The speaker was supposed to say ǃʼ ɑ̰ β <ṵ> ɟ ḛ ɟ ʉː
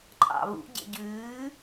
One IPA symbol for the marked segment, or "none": ṵ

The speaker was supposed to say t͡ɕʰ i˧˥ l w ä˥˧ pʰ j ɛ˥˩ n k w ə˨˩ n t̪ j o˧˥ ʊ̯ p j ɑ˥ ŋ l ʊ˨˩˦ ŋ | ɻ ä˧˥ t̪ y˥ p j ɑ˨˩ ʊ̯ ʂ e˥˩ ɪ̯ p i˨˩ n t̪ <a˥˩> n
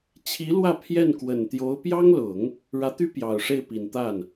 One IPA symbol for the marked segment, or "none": a˥˩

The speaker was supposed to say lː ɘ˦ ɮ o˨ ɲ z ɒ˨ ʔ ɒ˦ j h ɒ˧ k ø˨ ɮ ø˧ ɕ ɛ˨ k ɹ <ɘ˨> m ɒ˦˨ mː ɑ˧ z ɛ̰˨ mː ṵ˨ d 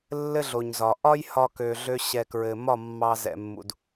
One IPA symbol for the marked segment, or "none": ɘ˨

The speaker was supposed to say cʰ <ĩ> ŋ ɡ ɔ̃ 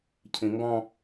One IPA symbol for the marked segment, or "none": ĩ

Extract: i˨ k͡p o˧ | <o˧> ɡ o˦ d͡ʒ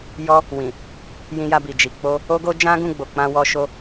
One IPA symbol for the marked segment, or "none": o˦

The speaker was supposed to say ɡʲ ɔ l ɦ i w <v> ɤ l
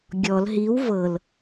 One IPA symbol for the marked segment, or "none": v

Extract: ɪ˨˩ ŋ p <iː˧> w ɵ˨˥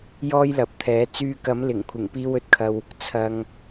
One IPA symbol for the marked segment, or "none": iː˧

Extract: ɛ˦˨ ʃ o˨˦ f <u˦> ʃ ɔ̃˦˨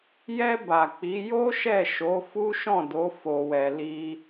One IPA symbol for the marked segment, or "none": u˦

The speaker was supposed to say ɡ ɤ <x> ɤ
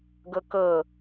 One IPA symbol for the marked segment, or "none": k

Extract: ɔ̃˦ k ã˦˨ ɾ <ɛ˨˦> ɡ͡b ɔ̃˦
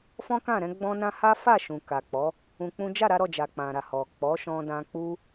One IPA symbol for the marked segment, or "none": ɛ̃˨˦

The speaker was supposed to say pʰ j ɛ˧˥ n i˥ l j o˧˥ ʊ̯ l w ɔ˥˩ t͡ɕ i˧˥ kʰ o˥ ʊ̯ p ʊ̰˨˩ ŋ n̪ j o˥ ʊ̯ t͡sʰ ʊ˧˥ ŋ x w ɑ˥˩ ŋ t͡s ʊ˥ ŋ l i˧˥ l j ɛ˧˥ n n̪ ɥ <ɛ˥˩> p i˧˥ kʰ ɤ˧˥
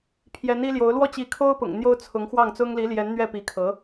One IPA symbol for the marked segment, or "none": ɛ˥˩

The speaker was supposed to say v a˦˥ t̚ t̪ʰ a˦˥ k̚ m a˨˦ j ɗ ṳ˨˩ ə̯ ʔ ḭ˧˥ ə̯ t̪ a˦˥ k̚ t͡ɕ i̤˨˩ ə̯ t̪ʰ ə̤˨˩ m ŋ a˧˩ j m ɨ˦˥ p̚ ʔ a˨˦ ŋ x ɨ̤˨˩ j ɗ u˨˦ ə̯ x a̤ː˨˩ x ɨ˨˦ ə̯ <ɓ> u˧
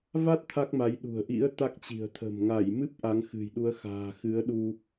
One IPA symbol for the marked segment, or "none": ɗ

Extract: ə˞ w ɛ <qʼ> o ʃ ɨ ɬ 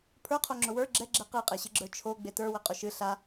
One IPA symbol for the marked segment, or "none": qʼ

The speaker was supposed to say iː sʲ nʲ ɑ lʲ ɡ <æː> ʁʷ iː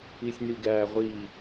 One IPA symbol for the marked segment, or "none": æː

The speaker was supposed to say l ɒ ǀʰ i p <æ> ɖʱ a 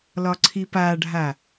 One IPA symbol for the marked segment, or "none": a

